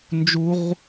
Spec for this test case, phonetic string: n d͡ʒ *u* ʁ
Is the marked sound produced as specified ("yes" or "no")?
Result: yes